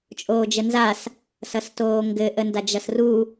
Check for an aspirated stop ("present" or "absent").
absent